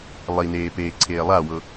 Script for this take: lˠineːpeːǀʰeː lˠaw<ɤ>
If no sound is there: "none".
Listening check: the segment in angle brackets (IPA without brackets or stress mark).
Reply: ɤ